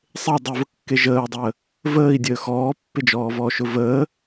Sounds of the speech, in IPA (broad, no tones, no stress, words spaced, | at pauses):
sˤe dˤyvʊkːe ʒəːu̯dˤəː | vəːi̯dʲəː xɔːpːɪd͡ʒɔːvɔːʃ ʊvəː